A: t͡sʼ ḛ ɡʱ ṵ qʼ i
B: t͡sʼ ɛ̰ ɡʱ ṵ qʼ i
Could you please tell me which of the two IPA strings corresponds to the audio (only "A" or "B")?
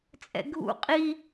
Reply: B